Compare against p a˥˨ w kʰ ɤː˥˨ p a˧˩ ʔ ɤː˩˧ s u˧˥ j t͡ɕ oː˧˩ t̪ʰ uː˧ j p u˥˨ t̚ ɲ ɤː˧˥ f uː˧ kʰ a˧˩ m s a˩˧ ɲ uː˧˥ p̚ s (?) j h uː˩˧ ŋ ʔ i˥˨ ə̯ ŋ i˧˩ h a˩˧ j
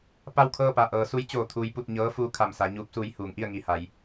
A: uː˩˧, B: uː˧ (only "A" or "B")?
B